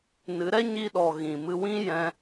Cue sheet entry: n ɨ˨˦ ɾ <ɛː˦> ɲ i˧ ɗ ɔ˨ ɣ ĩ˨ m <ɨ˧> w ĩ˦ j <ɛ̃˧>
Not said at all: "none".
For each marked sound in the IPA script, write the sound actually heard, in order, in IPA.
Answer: ɛ˦, ɨ˧, ɛ̃˧

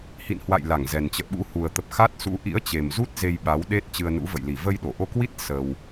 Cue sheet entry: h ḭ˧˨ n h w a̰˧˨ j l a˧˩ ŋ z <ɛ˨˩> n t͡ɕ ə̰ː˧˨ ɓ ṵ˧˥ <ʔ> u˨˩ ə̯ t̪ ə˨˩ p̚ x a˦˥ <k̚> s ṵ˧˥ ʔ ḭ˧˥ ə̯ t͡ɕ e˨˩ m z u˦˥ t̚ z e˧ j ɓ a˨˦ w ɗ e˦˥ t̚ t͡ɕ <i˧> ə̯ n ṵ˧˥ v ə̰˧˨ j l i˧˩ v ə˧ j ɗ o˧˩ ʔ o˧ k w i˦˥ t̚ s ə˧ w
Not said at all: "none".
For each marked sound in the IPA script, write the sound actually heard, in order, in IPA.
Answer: ɛ˨˩, h, t̚, ɨ˧

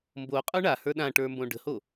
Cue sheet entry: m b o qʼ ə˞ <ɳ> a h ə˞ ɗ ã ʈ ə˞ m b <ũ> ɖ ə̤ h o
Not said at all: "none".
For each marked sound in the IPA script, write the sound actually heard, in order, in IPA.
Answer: ɳ, õ

